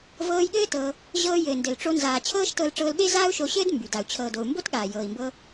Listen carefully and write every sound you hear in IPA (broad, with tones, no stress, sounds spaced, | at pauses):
v ɤː˧ j ɠ ɘː˦ t ɤ˧ | ʑ ɤː˧ j ɘː˨ n d ɘ˨ l ʈ͡ʂ o˧ n z aː˨ t͡ɕʰ ɤː˦ ʃ t ɤ˧ l ʈ͡ʂ ɤː˧ l ɓ e˦ z aː˦ u̯ ʃ o˧ ɕ ɘː˦ d m b y˨ d a˨ u̯ t͡ɕʰ ɤː˨ d o˨ u̯ m b o˦ t ɠ aː˨ j ɤː˨ i̯ m b ɤ˧